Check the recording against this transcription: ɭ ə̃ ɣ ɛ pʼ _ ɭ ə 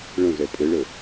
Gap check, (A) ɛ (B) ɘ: B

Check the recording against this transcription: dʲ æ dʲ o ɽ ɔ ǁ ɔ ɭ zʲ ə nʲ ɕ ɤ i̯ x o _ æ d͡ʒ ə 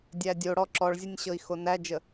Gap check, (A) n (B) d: A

